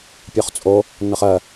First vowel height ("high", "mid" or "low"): mid